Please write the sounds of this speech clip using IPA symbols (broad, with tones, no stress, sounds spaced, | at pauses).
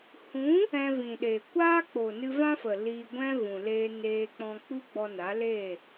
h ũ˨˦ | ɛ̃˧ v ĩ˨ ɗ eː˨ kʷ aː˦ k͡p o˨ n ɨ˧ v ã˦ f ə˨ l iː˧ ɡʷ ɛ̃˦ v ũ˨ l eː˧ n eː˧ k͡p ɔ̃˧ k͡p u˦ ɡ͡b ɔ˧ n a˨˦ l eː˦˨